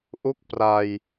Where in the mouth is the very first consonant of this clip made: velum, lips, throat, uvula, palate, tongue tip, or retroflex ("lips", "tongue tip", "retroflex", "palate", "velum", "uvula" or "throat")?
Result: throat